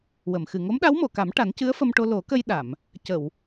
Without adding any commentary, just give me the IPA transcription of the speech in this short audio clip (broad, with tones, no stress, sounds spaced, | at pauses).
w ə˨˩˨ m x ɨ˨˩ ŋ o˧˥ m ɗ a˧˥ w m o˨˩˨ k a˨˩˦ m ʈ a˨˩˦ n c ɨ˧˥ ə̯ f ə˧ m ʈ o˧ l o˨˩˦ k ə˧ j ɗ a˨˩˨ m | c ə˨˩˨ w